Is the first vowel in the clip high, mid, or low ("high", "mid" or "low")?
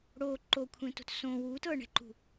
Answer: mid